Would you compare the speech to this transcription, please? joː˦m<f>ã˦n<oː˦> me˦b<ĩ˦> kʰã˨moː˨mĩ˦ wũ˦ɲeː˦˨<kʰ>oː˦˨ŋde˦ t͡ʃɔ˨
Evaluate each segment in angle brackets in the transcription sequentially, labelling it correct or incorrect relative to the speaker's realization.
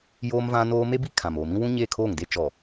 incorrect, correct, incorrect, correct

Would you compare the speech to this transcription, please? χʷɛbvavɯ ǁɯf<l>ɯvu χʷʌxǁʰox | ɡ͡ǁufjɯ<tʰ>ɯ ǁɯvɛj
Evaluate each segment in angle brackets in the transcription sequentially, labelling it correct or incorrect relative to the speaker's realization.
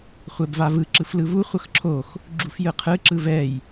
correct, incorrect

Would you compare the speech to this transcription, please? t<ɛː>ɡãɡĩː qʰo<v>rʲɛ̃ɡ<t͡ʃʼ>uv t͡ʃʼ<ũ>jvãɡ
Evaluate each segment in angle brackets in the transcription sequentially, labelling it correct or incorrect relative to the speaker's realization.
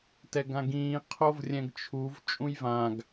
incorrect, correct, incorrect, correct

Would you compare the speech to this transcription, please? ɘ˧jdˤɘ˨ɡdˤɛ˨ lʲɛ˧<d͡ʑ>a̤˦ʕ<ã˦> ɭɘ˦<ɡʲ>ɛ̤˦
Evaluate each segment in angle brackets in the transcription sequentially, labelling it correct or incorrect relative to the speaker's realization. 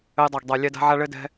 incorrect, incorrect, incorrect

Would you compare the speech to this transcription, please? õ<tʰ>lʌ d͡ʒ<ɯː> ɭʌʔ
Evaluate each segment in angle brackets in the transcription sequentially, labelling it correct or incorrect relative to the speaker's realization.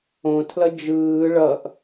correct, correct

